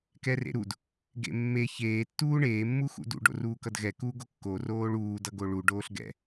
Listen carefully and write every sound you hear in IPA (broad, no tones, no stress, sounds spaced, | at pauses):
k ɛ r ḛ ɾ u d | ɡ ḛ mː e ç eː tː uː ɳ eː mː u x ṵ d ṵ ɖ o̰ r uː k ʌ d ɣ ɛ k uː ɡ o kː o r oː ɭ uː d ʌ ɡ o ɭ u ɖ oː ɬ ɡ ɛ̰